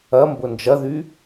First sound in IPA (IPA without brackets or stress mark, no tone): ɐ